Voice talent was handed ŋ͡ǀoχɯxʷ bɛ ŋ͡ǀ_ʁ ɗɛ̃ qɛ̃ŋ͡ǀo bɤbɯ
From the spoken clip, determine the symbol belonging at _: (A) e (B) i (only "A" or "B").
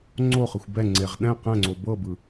A